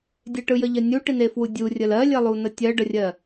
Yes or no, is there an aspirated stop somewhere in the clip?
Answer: no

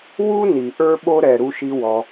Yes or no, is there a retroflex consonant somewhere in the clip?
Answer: no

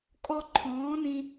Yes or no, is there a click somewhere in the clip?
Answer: yes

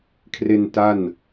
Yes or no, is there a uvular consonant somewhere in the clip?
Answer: no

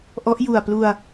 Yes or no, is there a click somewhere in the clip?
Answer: no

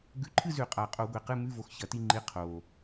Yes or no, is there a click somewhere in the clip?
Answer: yes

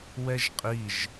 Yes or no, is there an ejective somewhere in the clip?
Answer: yes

